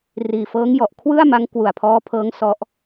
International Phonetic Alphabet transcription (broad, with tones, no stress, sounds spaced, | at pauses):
r iː˨˩ f ɤː˦˥ ŋ j ɔ˨˩ ʔ kʰ w ɯ˥˩ a̯ m a˦˥ ŋ k w u˨˩ a̯ pʰ ɔː˦˥ pʰ ɤː˦˥ ŋ s ɔ˦˥ ʔ